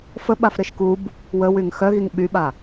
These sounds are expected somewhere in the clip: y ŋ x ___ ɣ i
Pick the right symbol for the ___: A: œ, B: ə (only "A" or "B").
A